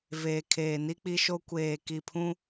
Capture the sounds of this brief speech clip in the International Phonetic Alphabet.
veː˨kʰeː˨ni˦ k͡pi˦ʃo˦ kʷeː˨ki˨pʰũ˦

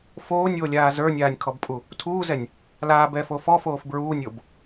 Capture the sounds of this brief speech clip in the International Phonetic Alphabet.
foːnʲwolʲaː zə˞nʲaːnʲkʰɔbpʼu | tʰuːzɛnʲ | laːbɛːf ofɔfoːf bɹuːnʲob

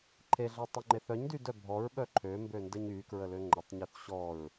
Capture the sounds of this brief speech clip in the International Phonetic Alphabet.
ǃʰeɮœtˤyŋ͡ǃe θœɲdydœ bʱɔɹɓœ ǃʰømbøndəɲ ykɹəlø ŋ͡ǃətˤɲyθ ɕɔɹ

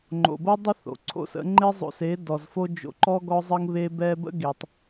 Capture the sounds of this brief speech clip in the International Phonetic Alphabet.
ŋ͡ǃo̰˨bo˦ dˤə˦ θo̰˨ǀʰo̰˦sə̰˨˦ ŋ͡ǃe˦zˤo̰˧se˨˦ dɔ˨zfo˦d͡ʒo̰˧ǃɔ˦ ɡɔ˧zˤə˧ŋ βe˧bɛ˧ bə̰˦ɡe˨tˤ

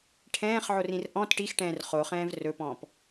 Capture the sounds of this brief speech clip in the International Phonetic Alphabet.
ʈʰɛ̃ːχʕorĩr ʔɔ̃t ʈixʈɛ̃ːr χoχɛ̃ːv rɵpɔ̃ːp

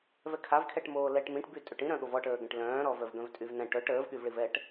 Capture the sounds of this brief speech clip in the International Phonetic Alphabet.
vɛkʰavkʰɛʈmoː lɛʈ mĩʈby tʼøʈĩɾœ̃ɠov ɔʈəːɡɛ̃ʈ lœ̃ːɾɔvœv ɡœ̃vtʼyvnɛ̃ ʈœʈ əːvɠyvɭivɛʈ

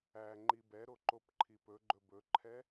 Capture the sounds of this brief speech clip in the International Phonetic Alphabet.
æ ŋ͡ǃibɛ ɾoǃopǃʰipɵ ɡ͡ǃɵbɵǃʰɛ

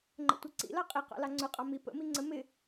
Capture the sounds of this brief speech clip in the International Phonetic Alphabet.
ŋ͡ǃə̰tʷɛǀḭlɑ qʼiqɑ̰ lɑŋ͡ǀʊqʼɑ mi pə̰mi ŋ͡ǀə mɪ

